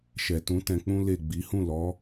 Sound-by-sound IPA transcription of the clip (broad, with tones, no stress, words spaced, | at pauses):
ʃɛ˨tũ˨˦ tɛ̃˧k͡pũ˦le˦˨ ɡ͡bi˨˦ hũ˦˨lɔ˨˦